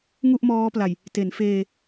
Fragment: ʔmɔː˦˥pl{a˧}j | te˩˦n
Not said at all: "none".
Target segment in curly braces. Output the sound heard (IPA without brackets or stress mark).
a˨˩